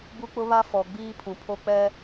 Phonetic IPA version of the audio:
b u˦ k͡p ʊ˦ β a˦ f ɔ˨ ɡ͡b iː˦ pʰ ũ˨ pʰ o˦ k͡p ɛ˦

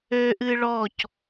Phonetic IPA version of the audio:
ø ʔ ɨ ɭ ɔ c

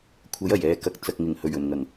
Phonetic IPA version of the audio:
kʷʰ ɐ˨˥ j ɐ˨˩ j ɛː˨˧ k ɐ˨ k̚ t͡s ɐ˨ k̚ ŋ ɪ˨˩ ŋ h ɵ˨˩ ɥ ɵ˨˩ n ŋ ɐ˨˩ ŋ

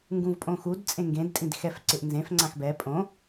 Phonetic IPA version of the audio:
ŋ ɡ ũ v pʼ õ x u d t͡sʼ ẽ ŋ ɡ ẽ d tʼ ĩ d x ɛ f ǀ ɪ ʔ n z ẽ f ŋ͡ǀ ã x b ɛ pʼ õ

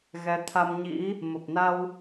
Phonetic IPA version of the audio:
ɣ ɛ˨˦ t̪ʰ a˧ m ɲ ḭ˧˥ | m ə˨˩ p̚ n a˧ w

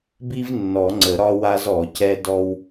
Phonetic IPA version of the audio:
b i˥ v nː ɔ˨˩˦ ŋ͡ǀ ə˨˩˦ ɾ ɒ˥ w a˥ z ɔ˨˩˦ c ɛ˥ d ɔ˥ w

